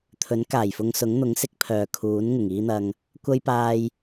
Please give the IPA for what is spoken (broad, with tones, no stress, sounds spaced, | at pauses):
t̪ʰ ɵ˨˥ n k aː˨˩ j f ʊ˧ ŋ s ʊ˨˥ ŋ n̪ ʊ˨˥ ŋ s ɪ˥ k̚ pʰ œː˧ kʰ uː˨˥ n ŋ ɪ˨˩ ŋ iː˥ n̪ ɐ˧ ŋ | kʷ ɐ˥ j p aː˧ j